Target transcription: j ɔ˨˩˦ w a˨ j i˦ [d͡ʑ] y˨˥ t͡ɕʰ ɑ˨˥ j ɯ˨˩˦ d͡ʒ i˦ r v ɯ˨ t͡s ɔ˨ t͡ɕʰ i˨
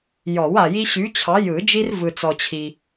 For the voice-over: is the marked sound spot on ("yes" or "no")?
no